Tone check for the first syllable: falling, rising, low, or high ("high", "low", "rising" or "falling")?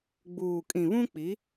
low